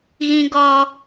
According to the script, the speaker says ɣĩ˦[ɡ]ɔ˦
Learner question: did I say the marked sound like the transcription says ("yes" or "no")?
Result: yes